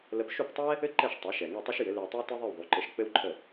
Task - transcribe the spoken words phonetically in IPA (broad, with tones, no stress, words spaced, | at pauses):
lə˧p ʃu˥˩ptˤɛ˥ | ɘ˥ǃɛ˥˩ʃ tˤa˩˥ ʃɛ˩ ŋɛ˥˩tˤɘ˥ʃjɘ˩˥ le˧wtˤe˥w tɘ˥ðˤe˥˩wðˤu˩˥ǃɘ˧ʃ k͡pɘ˥wǃʰə˥˩